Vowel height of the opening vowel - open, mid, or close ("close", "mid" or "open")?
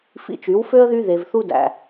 close